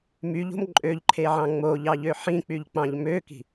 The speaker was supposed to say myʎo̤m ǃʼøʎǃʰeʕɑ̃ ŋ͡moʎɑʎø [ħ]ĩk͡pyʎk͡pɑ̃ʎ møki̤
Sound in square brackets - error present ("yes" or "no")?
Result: no